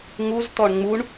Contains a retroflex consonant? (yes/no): yes